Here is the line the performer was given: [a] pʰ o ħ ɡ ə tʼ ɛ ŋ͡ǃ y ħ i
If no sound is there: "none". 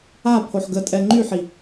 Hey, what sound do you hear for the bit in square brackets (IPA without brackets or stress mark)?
a